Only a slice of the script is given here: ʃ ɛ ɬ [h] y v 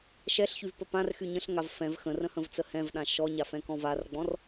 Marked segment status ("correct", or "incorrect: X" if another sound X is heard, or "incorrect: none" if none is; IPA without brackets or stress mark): incorrect: ç